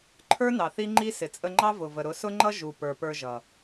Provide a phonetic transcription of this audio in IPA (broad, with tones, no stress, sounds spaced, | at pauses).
ǃʰ ə˞˦ n ɑ˨ θ i˦ ŋ͡ǃ i˦ s ɪ˨ t͡sʼ ə˧ ŋ͡ǃ ɑ˦ v ʊ˨ v ə˨ ɾ ʊ˨˦ s ʊ˦ ŋ͡ǃ ʌ˦ ʒ u˨ p ə˞˨ p ə˞˧ ʒ ʌ˨